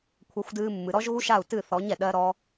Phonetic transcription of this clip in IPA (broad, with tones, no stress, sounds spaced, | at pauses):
kʷʰ a˧ xʷ d ɨː˧ mː ɨ˨ ɾ ɔ˦ ʒ ɣ u˦ ʃ a˦˨ u̯ t ɨ˦˨ θ ɔ˨˦ ɲ ɛ˨ ɗ ɜ˦ ɾ ɔ˦